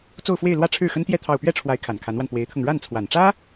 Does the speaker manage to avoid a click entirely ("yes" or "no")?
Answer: yes